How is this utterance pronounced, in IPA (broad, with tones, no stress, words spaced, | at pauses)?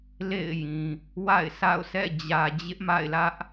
lḛ˦˨ɪ̯jĩ˨ | wa̰˦˨ɪ̯sa̰˦˨ʊ̯sɛ̰˦˨ d͡ʑä˨d͡ʑɪ˦ʔma̰˦˨ɪ̯lä˦ʔ